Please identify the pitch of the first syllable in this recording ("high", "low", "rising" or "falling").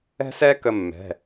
high